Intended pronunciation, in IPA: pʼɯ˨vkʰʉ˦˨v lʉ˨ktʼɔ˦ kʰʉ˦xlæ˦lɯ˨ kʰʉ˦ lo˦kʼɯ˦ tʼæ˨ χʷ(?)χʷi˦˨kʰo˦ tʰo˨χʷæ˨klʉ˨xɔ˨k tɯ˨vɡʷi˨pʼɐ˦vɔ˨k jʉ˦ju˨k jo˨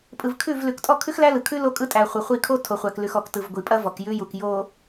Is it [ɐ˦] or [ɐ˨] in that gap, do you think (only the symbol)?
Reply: ɐ˨